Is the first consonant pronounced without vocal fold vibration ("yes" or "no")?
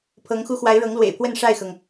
yes